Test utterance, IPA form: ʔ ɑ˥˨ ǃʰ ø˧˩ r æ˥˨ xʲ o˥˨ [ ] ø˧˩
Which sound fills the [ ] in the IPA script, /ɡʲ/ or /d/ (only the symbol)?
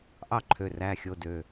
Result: d